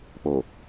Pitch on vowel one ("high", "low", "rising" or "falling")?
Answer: low